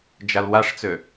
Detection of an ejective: absent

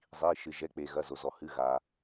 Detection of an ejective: absent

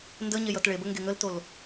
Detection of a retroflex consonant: present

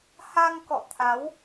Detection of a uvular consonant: absent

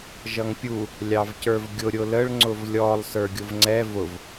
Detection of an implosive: absent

